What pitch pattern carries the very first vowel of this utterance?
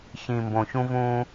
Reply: low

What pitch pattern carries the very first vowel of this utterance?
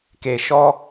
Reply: low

